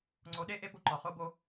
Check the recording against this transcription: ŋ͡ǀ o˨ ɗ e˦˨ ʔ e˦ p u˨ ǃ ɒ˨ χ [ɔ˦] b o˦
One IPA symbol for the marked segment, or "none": o˦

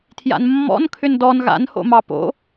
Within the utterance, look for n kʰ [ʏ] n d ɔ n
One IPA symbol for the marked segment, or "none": ʏ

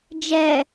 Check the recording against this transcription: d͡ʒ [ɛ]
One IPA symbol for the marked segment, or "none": ɛ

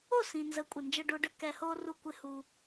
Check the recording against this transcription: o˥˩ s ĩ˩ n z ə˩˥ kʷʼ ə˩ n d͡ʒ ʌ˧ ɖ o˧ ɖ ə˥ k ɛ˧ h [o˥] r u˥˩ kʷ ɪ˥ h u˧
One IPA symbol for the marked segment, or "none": o˥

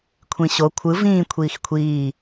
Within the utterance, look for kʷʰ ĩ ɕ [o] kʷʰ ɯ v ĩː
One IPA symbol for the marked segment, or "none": o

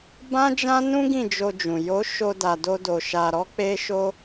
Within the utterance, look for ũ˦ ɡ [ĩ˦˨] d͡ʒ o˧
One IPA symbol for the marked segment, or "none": ĩ˦˨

